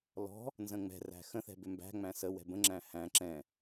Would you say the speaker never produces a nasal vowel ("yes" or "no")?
no